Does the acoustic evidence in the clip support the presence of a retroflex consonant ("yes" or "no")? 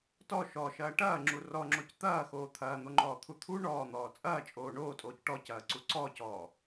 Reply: yes